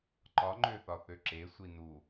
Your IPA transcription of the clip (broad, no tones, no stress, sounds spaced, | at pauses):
ǃ ɒ ŋ͡ǃ ø θ ɒ θ ø ǁ e sʷ i n u